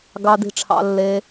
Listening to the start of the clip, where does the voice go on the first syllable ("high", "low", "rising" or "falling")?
low